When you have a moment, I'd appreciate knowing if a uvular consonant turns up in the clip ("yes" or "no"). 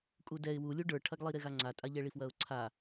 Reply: no